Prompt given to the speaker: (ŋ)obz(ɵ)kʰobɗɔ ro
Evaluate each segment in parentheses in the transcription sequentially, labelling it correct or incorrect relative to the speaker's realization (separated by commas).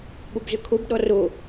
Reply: incorrect, correct